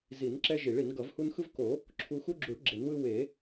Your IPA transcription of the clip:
zi˨˩˦nǁɛ˦ ʒi˨˩˦ɭi˨˩˦n ɡʌ˨˩˦vhu˦n xɯ˦vko˨˩˦ | ǁʰu˦ xu˦ɡ͡ǁu˨˩˦ɭ ɡ͡ǁe˨˩˦nwɯ˦ we˨˩˦

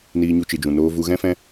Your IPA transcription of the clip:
niː˧ɲu˧ t͡ʃɨ˨d͡ʒũ˨ noː˧ vu˧ɣɛ̃˦fɛ̃˦

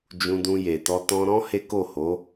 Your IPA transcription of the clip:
d͡ʒũ˧dũ˧je˨tɔ˧ tɔ̃˧ɾɔ̃˦ he˦ko˦˨ho˨˦

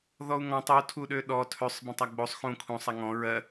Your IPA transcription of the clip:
ðɔu̯ŋɔ̃ tˤu tʰuɗøɗɔ tʰøsˤ bə̃tˤaɡ͡bosˤ xũ kʰũ sˤaŋɔ̃ ɹɜ

